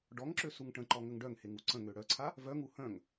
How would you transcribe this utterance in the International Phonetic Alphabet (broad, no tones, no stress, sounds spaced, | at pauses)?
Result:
ɖ ɔ ŋ ǁ ø s u ŋ ʈ ə̃ ǃ ɔ ŋ ə ŋ ɖ œ ŋ h e ŋ u ǀ ə̃ ŋ ø ɽ œ ǀʰ a | v œ ŋ u h œ̃ ŋ